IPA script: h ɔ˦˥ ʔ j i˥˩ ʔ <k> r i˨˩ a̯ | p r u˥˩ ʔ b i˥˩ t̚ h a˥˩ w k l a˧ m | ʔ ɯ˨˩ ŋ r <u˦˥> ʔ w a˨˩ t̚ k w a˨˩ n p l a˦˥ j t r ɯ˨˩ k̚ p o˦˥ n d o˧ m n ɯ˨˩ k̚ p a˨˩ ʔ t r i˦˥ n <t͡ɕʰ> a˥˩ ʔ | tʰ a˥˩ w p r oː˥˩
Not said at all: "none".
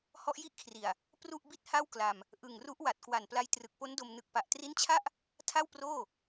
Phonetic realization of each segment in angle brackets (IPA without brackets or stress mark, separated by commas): kʰ, u˦˥, t͡ɕʰ